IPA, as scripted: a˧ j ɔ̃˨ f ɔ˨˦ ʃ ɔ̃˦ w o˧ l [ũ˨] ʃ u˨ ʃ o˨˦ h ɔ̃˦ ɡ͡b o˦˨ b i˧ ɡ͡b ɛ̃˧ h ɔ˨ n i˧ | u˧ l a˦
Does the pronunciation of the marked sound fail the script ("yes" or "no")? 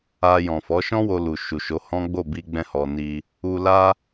yes